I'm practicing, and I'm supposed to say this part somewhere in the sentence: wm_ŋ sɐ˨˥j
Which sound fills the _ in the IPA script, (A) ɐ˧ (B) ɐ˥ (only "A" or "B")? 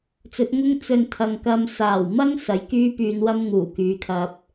B